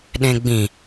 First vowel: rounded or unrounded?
unrounded